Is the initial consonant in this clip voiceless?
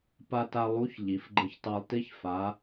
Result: yes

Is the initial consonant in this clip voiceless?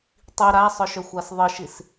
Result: yes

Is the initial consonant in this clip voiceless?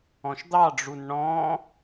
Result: yes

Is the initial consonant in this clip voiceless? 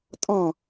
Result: yes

